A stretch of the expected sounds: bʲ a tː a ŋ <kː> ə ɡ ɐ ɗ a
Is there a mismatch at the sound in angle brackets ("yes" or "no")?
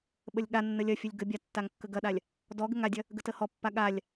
no